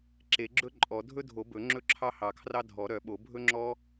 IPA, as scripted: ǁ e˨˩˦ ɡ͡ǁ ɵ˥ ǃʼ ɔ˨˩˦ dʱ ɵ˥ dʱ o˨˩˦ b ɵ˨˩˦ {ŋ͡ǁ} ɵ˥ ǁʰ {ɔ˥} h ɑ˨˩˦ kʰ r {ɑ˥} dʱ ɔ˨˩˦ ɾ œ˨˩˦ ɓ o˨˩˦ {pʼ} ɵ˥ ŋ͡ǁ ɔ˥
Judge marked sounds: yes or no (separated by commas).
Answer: yes, no, yes, no